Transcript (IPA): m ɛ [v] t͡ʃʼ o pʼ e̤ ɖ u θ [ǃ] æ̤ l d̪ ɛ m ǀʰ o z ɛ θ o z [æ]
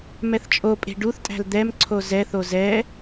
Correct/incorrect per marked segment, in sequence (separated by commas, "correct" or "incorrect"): incorrect, incorrect, incorrect